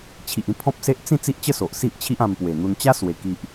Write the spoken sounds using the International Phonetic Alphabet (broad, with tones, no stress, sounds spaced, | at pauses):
t͡ɕʰ i˨ ʔ ĩ˧ pʰ ɔ̃˦ p̚ s e˦ ʔ t͡s ĩ˥˧ t͡s i˦ ʔ t͡ɕ ə˥˧ s o˨ ʔ s i˦ ʔ t͡ɕʰ i˦ ʔ ã˧ m p w e˨˩ n̪ u˧ n t͡ɕ a˦ s w e˧ k i˦ ʔ